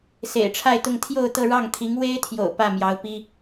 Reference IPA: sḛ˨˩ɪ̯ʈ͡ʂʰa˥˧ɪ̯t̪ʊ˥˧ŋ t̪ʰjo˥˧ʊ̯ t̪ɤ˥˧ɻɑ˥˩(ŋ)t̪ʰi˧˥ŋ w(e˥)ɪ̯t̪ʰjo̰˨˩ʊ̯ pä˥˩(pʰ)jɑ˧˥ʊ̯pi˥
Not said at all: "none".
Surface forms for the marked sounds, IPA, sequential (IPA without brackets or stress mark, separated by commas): ŋ, e˥, m